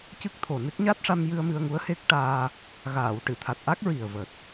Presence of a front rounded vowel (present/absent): absent